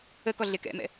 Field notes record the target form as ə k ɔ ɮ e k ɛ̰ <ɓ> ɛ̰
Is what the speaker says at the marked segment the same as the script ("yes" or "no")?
no